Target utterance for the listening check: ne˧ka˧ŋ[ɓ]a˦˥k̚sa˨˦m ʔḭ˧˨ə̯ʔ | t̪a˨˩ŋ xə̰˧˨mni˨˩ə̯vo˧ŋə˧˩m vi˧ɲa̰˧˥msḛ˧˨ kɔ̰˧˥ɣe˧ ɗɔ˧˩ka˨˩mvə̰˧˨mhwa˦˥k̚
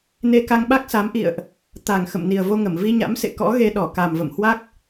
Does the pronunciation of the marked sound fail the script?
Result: no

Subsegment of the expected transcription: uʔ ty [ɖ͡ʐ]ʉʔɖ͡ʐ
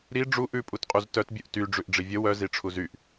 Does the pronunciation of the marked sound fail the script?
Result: no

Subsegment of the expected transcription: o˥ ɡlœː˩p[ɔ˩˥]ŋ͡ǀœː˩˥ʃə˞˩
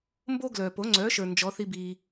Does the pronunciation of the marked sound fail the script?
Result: yes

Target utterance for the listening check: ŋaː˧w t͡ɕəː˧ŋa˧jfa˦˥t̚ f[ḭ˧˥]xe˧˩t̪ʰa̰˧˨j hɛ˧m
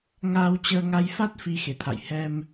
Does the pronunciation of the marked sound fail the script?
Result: yes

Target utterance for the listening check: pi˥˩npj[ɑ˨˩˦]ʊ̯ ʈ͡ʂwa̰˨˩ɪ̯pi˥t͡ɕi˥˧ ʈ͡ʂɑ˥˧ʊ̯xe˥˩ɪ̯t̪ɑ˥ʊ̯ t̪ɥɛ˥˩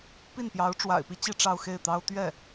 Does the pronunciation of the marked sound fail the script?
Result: yes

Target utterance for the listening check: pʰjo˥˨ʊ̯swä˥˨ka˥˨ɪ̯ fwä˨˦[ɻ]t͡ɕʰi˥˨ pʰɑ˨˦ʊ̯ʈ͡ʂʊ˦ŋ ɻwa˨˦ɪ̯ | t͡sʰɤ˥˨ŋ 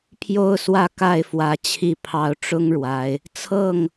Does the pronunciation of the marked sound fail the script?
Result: yes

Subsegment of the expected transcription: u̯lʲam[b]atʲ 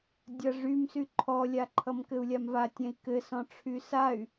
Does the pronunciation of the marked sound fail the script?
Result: yes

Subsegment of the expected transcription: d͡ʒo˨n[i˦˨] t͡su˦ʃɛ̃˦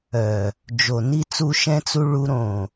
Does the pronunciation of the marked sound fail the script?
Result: yes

